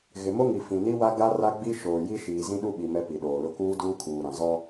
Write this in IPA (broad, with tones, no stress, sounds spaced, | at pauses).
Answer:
ɣ ɪ˨ m o˦ ŋ i˨ f ĩ˨ n i˦ w a˦ ɡ a˦ r a˦ ɡ͡b i˦ ʃ oː˨ j i˦ ʃ iː˨ z ĩ˦ ɗ u˦ ɓ i˨ m ɛ˦ p i˨ ɗ oː˨ l ʊ˦ k uː˦ d uː˦ kʰ uː˨ ɾ ã˨ z ɔ˦